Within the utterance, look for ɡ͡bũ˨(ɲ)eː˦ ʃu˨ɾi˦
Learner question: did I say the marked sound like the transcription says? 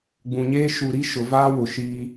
yes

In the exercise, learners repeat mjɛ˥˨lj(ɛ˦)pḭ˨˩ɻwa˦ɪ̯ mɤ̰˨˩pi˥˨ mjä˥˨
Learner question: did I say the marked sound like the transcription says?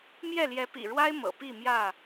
no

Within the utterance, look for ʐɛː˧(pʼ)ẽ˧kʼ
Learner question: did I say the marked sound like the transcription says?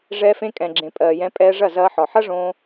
no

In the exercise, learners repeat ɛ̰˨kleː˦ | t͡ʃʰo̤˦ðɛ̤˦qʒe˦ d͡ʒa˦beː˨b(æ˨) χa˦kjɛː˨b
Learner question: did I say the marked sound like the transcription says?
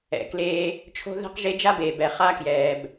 no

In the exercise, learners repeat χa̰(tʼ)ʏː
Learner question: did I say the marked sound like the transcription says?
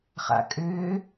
no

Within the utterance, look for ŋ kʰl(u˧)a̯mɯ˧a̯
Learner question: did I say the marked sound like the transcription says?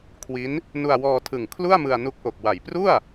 no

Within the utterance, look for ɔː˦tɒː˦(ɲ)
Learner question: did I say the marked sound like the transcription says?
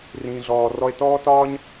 yes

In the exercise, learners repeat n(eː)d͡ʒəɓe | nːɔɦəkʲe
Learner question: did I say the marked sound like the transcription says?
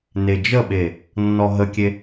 no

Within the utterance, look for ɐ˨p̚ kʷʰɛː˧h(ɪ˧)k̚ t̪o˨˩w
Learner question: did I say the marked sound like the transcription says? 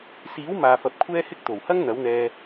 yes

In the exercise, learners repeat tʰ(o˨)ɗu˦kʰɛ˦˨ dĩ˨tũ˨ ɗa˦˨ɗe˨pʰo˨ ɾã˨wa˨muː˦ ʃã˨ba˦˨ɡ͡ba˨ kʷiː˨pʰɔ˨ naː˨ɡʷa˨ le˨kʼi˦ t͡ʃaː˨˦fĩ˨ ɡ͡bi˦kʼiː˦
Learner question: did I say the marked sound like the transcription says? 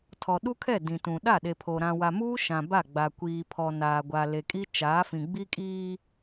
no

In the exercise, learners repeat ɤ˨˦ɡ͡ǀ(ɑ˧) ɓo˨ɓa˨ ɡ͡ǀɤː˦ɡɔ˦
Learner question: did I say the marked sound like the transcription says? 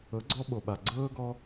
no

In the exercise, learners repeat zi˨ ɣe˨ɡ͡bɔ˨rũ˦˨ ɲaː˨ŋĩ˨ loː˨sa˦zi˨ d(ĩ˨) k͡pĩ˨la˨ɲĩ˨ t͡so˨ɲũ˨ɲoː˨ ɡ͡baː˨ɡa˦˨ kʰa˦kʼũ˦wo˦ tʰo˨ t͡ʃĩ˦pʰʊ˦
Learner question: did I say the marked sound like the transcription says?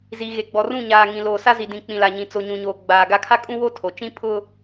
yes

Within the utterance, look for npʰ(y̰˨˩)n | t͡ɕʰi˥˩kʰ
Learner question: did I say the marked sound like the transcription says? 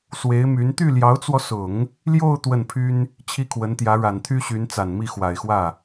no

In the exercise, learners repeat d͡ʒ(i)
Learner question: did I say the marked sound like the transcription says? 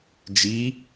yes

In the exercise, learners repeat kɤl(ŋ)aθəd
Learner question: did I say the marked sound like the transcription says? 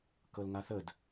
yes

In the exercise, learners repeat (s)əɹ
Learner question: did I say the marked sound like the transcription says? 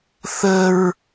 no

